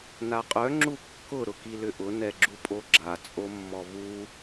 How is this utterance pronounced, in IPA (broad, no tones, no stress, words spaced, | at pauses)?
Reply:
naqʼœ ŋ͡ǁukːʊ ɾʊkilʏʔʊ nɛɡ͡ǁupʼoɡ͡ǁa t͡sʼomːɔvu